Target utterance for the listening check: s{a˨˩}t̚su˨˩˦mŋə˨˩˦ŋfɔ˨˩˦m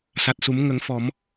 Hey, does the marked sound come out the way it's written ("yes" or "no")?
yes